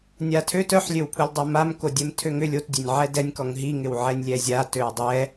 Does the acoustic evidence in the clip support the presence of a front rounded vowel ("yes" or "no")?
yes